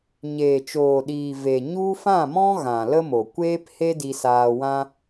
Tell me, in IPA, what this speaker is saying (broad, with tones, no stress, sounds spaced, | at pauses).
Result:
ɲ eː˨ t͡ʃ oː˨ ɗ iː˨ v e˨ ɲ u˦ f ã˦˨ m ɔ̃˦ ɣ ã˨ l ə˦ m o˨ kʷ eː˦ p h e˦ d i˧ s aː˧ w ã˦